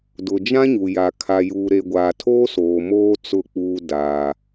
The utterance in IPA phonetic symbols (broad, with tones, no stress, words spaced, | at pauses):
dʊ˨d͡ʒã˦ɲu˨ja˨ kʰa˨juː˨ɾe˨ ɡʷaː˨tʰoː˦soː˨moː˦ t͡sʊ˦˨k͡puː˦ daː˦